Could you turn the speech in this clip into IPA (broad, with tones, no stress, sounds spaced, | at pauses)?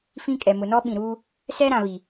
f ĩ˦ kʼ ɛ˨ m ʊ˨ n ɔ˦ ɓ ĩ˨ ɾ uː˦ | s ɛ˦ ɾ ã˨ β i˨